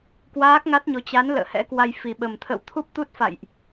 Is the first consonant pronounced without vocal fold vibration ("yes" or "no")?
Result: yes